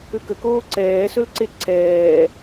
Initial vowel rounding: rounded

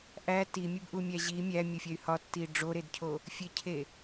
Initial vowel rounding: unrounded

